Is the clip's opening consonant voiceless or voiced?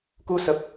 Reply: voiceless